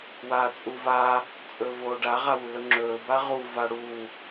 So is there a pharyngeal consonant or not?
no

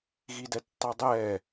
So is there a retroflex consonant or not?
no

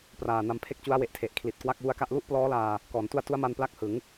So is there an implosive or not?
no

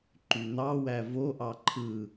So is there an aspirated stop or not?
yes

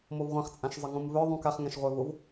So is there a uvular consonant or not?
yes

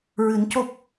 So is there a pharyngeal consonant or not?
no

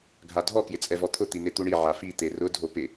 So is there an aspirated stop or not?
yes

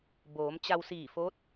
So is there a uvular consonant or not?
no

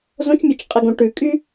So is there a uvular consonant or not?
yes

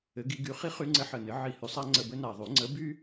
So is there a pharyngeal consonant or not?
yes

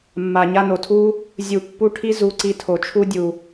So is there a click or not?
yes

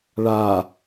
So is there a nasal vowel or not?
no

